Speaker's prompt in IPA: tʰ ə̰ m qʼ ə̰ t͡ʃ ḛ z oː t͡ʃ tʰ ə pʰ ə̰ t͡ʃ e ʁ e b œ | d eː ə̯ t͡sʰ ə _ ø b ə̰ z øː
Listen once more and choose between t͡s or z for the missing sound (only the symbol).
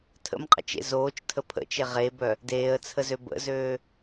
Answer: z